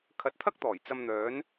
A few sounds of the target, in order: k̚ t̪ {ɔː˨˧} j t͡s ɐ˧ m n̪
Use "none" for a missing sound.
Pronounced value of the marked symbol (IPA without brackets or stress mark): ɔː˨˩